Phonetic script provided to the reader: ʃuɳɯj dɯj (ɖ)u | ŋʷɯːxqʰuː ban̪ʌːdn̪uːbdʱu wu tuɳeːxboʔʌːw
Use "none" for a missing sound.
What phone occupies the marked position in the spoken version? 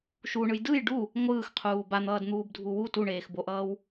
ɖ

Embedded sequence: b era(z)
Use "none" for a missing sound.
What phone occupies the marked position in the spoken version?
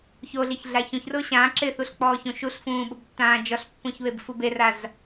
z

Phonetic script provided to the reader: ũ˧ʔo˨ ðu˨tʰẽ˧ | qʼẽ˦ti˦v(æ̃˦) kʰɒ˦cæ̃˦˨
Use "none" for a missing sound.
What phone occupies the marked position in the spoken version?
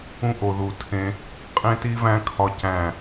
æ̃˦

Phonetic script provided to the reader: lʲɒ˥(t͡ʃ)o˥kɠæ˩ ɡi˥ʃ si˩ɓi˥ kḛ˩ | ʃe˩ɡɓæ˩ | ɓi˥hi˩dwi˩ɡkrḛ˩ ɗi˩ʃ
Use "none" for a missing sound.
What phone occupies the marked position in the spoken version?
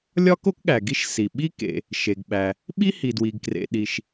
k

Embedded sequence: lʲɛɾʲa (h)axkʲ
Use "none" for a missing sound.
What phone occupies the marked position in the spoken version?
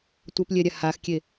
h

